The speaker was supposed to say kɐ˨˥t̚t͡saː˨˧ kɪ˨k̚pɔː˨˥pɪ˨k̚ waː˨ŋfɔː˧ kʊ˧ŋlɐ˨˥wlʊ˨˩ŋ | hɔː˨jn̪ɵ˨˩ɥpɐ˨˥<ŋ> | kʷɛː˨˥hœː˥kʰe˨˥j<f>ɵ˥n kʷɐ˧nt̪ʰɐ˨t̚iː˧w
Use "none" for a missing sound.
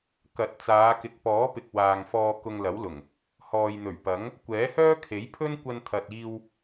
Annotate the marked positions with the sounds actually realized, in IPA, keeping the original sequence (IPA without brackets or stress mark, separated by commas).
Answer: ŋ, pʰ